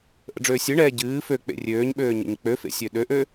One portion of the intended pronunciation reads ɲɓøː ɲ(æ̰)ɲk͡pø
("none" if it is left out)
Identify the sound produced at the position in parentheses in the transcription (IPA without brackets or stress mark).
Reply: ə̰